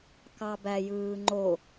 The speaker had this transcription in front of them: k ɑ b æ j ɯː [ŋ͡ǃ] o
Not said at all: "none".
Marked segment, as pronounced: ŋ͡ǃ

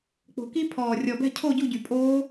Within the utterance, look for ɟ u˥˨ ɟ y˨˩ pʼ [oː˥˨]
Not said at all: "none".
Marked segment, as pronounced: oː˦˥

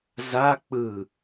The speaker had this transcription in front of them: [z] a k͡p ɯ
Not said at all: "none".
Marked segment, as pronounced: z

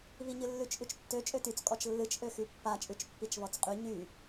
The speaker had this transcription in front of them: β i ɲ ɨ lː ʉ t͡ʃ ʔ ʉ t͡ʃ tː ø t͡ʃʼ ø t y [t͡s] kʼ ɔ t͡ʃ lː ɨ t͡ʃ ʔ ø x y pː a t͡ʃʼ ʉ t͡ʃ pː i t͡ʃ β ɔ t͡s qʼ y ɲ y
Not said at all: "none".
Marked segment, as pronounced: t͡s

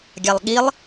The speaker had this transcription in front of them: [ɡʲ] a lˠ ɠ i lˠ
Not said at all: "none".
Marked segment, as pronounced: ɡʲ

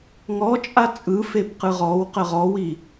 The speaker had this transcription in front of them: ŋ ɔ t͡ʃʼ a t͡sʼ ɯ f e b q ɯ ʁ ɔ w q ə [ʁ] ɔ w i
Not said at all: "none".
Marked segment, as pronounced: ʁ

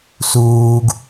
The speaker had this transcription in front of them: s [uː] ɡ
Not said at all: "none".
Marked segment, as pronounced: uː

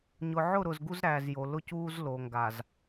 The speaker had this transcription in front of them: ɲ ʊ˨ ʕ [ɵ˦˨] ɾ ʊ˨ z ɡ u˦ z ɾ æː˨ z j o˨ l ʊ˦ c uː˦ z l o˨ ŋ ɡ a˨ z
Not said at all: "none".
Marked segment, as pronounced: ʊ˦˨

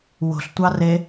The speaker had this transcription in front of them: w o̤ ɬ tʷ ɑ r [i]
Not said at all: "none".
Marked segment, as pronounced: e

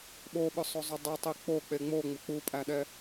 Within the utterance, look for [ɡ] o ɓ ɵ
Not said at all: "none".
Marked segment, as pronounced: ɓ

